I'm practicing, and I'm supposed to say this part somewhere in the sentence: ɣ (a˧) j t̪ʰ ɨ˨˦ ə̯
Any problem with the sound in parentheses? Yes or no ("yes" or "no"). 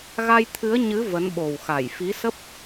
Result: no